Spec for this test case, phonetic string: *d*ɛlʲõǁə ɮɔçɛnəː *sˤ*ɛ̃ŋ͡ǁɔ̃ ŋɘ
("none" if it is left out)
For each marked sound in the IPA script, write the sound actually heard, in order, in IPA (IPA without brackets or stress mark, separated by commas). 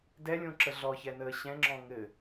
d, ɕ